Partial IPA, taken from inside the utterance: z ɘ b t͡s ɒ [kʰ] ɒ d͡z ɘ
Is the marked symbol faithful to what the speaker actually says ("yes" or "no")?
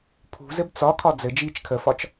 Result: yes